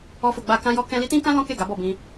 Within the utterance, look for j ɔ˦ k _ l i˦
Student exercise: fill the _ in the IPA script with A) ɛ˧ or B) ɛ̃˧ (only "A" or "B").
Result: B